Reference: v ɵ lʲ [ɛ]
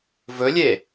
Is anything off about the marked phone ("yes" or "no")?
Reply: yes